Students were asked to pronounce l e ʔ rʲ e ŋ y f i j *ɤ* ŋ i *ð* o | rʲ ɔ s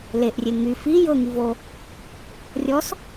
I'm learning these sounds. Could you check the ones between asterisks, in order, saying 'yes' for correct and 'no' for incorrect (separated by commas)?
yes, no